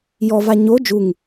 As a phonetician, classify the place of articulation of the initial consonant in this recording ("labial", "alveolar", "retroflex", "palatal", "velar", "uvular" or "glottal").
palatal